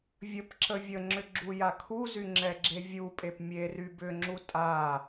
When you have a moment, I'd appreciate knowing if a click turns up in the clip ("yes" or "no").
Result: yes